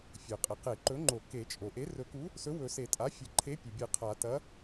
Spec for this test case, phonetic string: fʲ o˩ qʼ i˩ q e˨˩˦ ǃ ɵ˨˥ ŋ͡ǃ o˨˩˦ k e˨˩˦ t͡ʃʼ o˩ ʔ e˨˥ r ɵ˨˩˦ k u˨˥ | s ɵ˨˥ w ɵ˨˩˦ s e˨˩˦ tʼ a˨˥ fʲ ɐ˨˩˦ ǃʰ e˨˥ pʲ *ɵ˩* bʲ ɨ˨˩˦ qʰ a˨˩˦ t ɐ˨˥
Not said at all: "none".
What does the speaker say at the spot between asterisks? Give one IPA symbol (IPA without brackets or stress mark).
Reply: o˩